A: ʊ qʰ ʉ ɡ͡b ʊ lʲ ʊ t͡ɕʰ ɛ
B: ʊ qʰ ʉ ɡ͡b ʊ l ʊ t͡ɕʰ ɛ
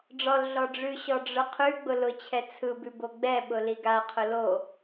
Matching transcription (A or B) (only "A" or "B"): B